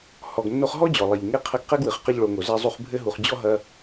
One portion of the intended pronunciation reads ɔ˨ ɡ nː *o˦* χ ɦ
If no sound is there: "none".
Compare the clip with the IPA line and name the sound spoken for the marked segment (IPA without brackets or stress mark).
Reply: o˦